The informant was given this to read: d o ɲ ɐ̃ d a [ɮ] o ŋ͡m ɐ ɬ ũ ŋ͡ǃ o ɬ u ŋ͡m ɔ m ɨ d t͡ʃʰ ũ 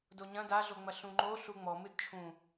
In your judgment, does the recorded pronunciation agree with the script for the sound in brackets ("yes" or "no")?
yes